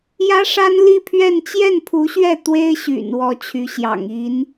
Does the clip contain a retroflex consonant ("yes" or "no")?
yes